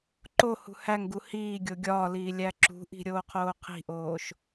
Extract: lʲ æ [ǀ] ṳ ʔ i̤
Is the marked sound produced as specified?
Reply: no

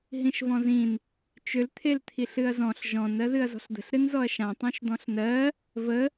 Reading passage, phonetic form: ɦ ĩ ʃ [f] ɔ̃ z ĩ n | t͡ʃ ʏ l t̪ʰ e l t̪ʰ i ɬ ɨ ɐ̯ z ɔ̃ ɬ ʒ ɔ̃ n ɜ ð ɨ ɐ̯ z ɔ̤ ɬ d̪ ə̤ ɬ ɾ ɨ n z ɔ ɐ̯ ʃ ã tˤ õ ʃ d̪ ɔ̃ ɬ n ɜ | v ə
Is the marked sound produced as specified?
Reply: no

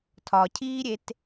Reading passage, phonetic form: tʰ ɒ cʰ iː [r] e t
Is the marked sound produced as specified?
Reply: no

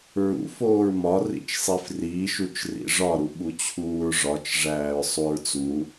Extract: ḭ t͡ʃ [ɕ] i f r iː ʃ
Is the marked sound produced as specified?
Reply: no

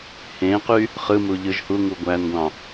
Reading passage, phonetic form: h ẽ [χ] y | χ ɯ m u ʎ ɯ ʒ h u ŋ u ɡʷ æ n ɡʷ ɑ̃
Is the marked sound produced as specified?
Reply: no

